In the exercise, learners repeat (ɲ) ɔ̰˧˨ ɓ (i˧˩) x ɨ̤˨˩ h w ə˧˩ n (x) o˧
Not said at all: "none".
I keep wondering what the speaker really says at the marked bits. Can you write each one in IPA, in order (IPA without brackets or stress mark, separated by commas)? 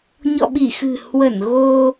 ɲ, i˧˩, ɣ